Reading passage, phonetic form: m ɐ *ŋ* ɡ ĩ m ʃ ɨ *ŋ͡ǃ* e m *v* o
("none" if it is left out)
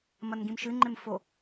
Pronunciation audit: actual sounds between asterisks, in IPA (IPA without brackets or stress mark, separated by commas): n, ŋ͡ǃ, f